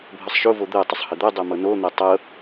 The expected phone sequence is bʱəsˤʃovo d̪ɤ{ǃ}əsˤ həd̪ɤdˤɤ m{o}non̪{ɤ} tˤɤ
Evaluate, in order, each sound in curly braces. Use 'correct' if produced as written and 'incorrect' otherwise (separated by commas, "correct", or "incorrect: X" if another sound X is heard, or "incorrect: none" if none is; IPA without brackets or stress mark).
incorrect: tˤ, incorrect: ɤ, correct